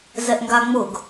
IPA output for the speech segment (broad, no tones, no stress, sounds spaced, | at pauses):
z ɛ ʔ ŋ ɡ a ŋ͡m ʊ ɡ